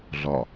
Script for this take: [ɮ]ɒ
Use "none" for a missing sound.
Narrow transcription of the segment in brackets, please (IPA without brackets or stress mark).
ɮ